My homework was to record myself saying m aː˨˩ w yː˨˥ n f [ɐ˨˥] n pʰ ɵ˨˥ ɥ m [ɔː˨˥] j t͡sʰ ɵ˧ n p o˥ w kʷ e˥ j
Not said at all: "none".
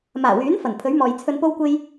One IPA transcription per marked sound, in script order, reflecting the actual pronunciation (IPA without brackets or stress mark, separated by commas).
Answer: ɐ˨˩, ɔː˨